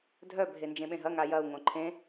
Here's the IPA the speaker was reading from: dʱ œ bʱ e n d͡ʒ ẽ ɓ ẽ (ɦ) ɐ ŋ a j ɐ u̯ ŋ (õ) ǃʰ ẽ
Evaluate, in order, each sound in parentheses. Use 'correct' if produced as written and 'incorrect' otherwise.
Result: correct, correct

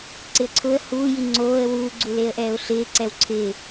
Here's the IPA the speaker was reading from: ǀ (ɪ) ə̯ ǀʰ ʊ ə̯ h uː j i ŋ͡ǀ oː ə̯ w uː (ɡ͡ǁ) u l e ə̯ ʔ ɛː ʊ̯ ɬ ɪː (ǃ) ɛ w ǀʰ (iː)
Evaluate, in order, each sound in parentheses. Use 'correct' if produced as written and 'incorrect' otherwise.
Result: correct, incorrect: ɡ͡ǀ, incorrect: ǀ, incorrect: ɪː

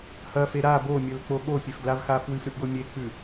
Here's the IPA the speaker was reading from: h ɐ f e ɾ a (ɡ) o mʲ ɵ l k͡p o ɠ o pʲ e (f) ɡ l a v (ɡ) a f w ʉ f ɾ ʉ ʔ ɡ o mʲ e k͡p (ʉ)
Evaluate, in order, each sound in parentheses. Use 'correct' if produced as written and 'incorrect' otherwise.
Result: incorrect: b, correct, incorrect: x, correct

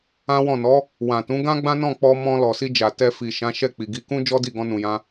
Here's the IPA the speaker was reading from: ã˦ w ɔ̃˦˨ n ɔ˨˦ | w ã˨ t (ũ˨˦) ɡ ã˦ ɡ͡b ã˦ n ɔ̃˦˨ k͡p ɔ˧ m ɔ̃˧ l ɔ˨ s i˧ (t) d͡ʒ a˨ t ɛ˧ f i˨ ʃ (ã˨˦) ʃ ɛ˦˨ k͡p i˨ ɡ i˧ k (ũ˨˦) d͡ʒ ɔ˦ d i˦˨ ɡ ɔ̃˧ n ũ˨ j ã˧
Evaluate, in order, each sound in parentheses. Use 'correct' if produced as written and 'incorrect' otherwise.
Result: correct, incorrect: none, correct, incorrect: ũ˦

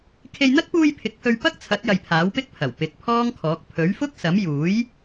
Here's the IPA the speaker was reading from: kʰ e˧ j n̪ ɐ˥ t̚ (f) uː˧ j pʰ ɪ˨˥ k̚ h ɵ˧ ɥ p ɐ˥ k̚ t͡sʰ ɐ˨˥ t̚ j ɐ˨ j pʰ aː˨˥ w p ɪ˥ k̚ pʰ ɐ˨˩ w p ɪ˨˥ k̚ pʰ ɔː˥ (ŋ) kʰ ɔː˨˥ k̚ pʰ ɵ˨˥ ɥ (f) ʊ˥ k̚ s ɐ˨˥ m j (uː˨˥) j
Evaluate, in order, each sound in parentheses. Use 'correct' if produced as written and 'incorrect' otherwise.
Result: incorrect: p, correct, correct, correct

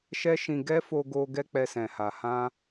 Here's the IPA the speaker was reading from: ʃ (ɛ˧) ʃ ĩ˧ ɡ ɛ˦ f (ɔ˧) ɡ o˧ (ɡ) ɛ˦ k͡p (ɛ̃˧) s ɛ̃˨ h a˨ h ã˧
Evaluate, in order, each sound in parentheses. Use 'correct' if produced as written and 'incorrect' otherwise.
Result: incorrect: ɛ˦, incorrect: o˧, correct, incorrect: ɛ˧

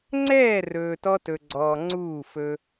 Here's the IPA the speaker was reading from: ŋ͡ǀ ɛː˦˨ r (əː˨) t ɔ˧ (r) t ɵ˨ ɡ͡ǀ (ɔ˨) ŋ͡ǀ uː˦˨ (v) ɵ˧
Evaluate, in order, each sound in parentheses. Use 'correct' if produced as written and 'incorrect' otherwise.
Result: incorrect: ɵː˨, incorrect: none, incorrect: ɔː˨, incorrect: f

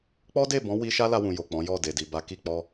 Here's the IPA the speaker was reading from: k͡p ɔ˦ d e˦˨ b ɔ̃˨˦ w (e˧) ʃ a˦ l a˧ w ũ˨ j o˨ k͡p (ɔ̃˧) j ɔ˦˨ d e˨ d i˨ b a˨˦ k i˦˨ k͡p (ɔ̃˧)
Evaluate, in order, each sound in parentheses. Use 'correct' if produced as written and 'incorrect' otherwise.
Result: incorrect: i˧, incorrect: ɔ̃˨˦, incorrect: ɔ˧

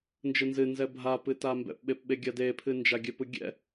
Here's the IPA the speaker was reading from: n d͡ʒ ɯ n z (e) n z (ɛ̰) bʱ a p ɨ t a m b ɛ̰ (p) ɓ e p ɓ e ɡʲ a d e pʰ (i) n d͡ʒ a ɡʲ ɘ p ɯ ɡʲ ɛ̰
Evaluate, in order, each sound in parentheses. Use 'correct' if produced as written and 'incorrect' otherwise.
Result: incorrect: ɨ, incorrect: ɛ, correct, incorrect: ɨ

